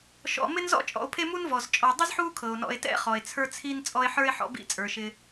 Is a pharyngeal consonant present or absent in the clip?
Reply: present